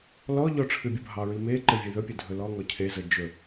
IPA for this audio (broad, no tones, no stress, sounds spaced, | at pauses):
l ɔ ʎ ɔ ʈ͡ʂʰ ɨ bʲ u bʱ ɑ ɹ i m e ǃ ɘ vʲ ɘ ð ɵ pʲ ɘ dʱ ɵ l ɔ ŋ ɔ cʰ e z ə d͡ʒ ɵ